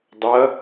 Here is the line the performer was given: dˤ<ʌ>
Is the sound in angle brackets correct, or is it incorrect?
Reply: correct